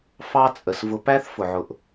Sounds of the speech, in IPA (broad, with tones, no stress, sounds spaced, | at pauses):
f ɑ˦ t͡sʼ ə˨ s v ʊ˨ p æ˦ θ f ʊ˨ ʕ ʊ˨ ʔ